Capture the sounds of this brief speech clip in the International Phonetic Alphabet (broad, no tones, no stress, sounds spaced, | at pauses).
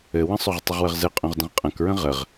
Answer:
ɘ w ə̃ sˤ o ʁ tˤ ə ʁ w ə ʁ z ɘ qʼ õ ʁ d ə̃ ʁ qʼ ɐ̃ k ɹ ə̃ ʁ ə ʁ